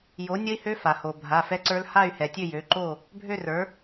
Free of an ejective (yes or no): yes